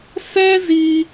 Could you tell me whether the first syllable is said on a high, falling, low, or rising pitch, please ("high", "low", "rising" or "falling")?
high